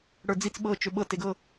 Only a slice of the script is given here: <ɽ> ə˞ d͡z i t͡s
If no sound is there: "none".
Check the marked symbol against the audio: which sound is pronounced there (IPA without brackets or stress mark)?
ɽ